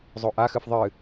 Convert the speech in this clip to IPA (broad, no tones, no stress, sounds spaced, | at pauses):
zˤ o ʔ a x ɨ f ðˤ ɨ